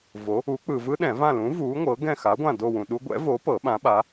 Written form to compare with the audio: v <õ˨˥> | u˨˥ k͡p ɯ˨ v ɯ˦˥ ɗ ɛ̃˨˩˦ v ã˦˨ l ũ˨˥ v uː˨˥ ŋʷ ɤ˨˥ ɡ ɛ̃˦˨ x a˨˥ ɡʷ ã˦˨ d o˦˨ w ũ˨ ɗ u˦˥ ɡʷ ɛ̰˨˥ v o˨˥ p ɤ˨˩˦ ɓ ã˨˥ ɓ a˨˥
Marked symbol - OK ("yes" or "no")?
no